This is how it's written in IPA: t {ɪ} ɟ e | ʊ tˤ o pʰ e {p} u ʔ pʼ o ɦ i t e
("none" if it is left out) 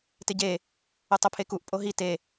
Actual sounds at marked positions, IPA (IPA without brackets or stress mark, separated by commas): ɪ, k